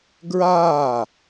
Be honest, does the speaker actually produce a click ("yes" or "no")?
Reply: no